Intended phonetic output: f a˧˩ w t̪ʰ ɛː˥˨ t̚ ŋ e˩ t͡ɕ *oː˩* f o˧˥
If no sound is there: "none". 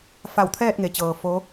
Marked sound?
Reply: ɤː˩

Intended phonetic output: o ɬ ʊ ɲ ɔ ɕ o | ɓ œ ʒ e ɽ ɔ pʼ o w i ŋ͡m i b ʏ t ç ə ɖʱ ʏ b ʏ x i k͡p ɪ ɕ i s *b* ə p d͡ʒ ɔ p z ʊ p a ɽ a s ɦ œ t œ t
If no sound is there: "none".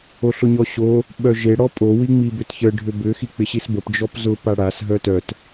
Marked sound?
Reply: b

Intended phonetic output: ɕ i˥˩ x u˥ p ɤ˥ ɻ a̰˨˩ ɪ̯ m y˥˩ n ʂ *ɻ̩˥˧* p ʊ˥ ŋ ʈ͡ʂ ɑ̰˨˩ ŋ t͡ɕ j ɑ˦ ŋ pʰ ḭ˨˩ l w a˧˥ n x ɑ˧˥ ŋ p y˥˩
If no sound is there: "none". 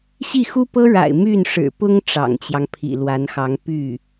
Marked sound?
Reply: ɻ̩˨˩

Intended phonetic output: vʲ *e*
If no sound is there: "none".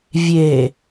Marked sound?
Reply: e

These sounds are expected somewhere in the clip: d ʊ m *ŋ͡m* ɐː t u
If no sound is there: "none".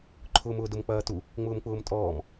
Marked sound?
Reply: k͡p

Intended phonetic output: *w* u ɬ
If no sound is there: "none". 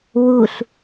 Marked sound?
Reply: w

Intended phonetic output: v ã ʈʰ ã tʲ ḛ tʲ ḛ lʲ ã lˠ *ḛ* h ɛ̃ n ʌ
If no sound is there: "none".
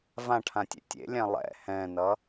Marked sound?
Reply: ɛ̰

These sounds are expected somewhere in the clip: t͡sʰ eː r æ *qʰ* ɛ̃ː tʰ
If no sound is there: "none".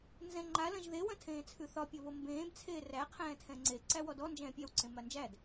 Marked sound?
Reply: qʰ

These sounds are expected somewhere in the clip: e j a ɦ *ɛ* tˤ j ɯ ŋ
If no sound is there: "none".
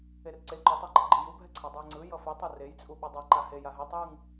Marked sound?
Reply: e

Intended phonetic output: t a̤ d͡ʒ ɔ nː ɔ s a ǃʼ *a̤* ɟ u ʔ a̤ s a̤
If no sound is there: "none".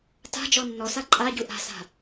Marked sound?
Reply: a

